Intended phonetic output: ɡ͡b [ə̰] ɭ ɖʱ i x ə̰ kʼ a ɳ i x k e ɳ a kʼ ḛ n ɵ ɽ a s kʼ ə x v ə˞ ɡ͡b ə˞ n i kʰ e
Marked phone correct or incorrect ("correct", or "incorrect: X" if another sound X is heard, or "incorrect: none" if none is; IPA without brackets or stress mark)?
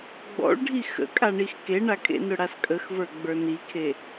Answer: incorrect: ɔ̰